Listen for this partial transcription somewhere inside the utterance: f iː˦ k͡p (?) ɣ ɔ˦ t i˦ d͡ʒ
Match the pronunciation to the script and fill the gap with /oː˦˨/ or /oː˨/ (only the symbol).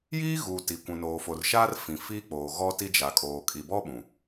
oː˨